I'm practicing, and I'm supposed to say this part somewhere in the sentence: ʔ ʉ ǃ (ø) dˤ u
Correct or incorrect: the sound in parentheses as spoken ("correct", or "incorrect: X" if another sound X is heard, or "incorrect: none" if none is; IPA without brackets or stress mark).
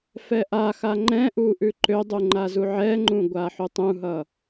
correct